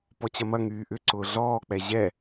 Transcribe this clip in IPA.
p ɔ t͡ɕ ɐ m ɐ ŋ yː ʔ ʏ ǀ ʊː ɮ ɔː k͡p ɛ ʑ ɛ

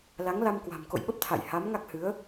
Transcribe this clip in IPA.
l a˨˦ ŋ l a˧ m k w a̤˨˩ m k o̰˧˨ j ɓ ə˦˥ p̚ t̪ʰ a̰˧˨ j h a˨˦ m ŋ a˦˥ k̚ h ɨ˨˦ ə̯

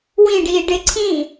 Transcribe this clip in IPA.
w ĩ ɖ iː ɖ ɪ ǀʰ ĩ

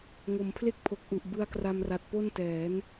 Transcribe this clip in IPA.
ŋ o˩˦ m pʰ l e˥˩ k̚ pʰ o˨˩ k̚ ʔ u˨˩ ʔ b ɯ˧ a̯ k r a˧ m r a˨˩ t̚ p o˥˩ n t ɛː˩˦ n

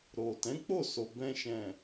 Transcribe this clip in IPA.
ɾ o˨ t ɛ̃˨˦ k͡p o˦˨ s o˨ b ɛ̃˧ ʃ ɛ̃˨

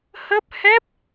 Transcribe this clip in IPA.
h ə˦˥ p̚ h ɛ˦˥ p̚

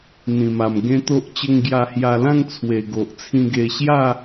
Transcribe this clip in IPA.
n̪ ĩ˨˩ m a˨˩ m ɡ ẽ˦ t̪ o˦ ʔ t͡ɕ ə˧ ŋ ɡ j a˧ h j a˧ l ã˥˧ ŋ t͡sʰ w e˨˩ ɡ o˨ ʔ t͡sʰ ĩ˧ ɡ e˧ ɕ j a˥˧

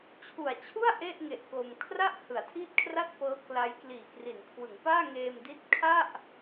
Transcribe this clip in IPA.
t͡ɕʰ u˨˩ a̯ t͡ɕʰ u˥˩ a̯ ʔ e˥˩ ʔ ŋ e˨˩ ʔ k o˧ m kʰ r a˥˩ ʔ h ɯ˩˦ a̯ tʰ iː˥˩ t̚ kʰ r a˥˩ t̚ p ɤː˦˥ k l a˦˥ j k l iː˨˩ k r i˩˦ n kʰ w ɯ˩˦ ŋ p aː˥˩ ŋ eː˧ m d i˦˥ t̚ kʰ a˥˩ ʔ

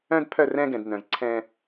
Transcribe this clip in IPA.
œ̃˦ d pʰ œ˦˨ r ɛ̃˦ ɡ ɛ̃˨ d n œ̃˨ z ǀʰ ɛ̃˦

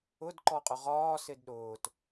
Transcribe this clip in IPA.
ʊ d ǃ ɔ qʼ ʊ ʁ ɒː s ɪ d ɗ ʊː t

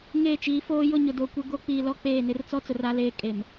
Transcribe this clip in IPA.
ŋ eː˦˨ t͡ʃ iː˨˦ f oː˦ j ʊ˦˨ ɲ ʊ˨ d o˨ kʷ ɪ˦ ɡ o˦ k͡p iː˨ l ɔ˦ k͡p eː˦˨ n ɪ˦ r t͡s ɔ˦ t͡s ʊ˨ r a˦ l eː˦ kʼ e˨ m

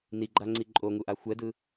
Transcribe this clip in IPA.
n i ɡ͡ǃ a ŋ͡ǀ i ǃʼ o ŋ u ʔ a xʷ ɛ d ɯ

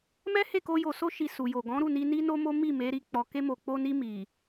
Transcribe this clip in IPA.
m ɛ˦ h e˦˨ k o˧ j o˧ s o˦ ʃ i˧ s u˨ j o˨ ɡ ɔ̃˨˦ ɾ u˦˨ n i˧ n i˦ n o˦ m o˦ m i˦˨ m e˨˦ ɾ i˧ k͡p ɔ˨ k e˧ m o˨ k͡p o˧ n i˧ m i˨

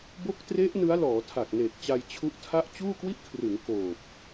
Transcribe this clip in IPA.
b o˦˥ k̚ t r e˦˥ ʔ n ɯ˦˥ a̯ l ɔː˩˦ tʰ a˨˩ k̚ n eː˨˩ k̚ t͡ɕ a˧ j t͡ɕʰ u˦˥ ʔ tʰ a˥˩ ʔ t͡ɕ uː˥˩ k w i˥˩ ʔ kʰ r ɯ˩˦ ŋ k oː˨˩ p̚

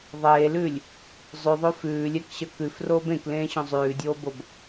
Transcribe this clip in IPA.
ðˤ eː l ʉː lʲ | zˤ ʉ ðˤ o f ʉː lʲ ɛ k ɕ ə k ʉ f r oː b ẽ k l ẽː ɕ õ zˤ ʉː dʲ oː b o b

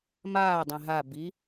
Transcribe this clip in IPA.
m aː dˤ ẽ ɦ a b i

